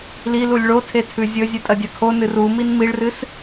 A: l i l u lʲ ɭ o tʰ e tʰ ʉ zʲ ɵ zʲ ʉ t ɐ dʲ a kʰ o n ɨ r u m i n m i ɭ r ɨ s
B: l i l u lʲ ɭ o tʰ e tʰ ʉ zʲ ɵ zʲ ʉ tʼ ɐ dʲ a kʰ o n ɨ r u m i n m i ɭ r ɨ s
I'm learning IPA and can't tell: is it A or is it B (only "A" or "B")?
B